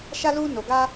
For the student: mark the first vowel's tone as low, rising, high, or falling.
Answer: high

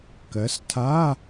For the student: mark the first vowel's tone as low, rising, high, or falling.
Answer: rising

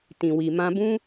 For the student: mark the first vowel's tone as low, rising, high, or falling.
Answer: low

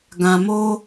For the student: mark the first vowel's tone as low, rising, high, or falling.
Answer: low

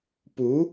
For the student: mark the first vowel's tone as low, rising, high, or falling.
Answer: rising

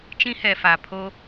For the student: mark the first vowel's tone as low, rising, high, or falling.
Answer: high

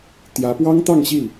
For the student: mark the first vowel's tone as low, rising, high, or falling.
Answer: rising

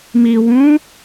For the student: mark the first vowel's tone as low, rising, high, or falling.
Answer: low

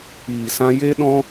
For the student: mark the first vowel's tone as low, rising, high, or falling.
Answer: low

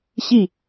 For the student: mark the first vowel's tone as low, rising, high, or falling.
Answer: falling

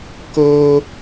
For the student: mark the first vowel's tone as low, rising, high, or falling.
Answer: high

